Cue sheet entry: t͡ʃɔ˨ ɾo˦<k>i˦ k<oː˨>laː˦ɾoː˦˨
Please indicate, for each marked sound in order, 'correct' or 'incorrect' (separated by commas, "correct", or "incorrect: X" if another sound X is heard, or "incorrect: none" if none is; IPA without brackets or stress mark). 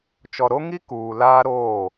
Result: incorrect: ŋ, incorrect: uː˨